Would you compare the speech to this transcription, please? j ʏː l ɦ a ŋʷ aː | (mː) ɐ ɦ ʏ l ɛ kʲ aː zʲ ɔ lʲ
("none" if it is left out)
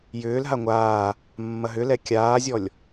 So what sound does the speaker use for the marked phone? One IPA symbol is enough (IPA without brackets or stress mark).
mː